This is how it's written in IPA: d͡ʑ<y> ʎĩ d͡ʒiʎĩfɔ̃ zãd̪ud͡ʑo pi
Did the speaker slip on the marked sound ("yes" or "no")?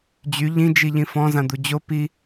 no